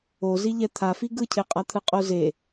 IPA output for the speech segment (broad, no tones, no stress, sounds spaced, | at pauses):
o z i ʎ ɛ t̪ʰ a f i ɡ ɯ cʰ e qʼ a t̪ʰ ɯ qʼ o z e